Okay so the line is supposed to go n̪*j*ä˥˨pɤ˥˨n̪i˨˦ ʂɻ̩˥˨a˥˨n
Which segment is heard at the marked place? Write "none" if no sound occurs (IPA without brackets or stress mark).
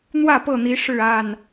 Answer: w